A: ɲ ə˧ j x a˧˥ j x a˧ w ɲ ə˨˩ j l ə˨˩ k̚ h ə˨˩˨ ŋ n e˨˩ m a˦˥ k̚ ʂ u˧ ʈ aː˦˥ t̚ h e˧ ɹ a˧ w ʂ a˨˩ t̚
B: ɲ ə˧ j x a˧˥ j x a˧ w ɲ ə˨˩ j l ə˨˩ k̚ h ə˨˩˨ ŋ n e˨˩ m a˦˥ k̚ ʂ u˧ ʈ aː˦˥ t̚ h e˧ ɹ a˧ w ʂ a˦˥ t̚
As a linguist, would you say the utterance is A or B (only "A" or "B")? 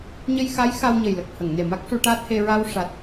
A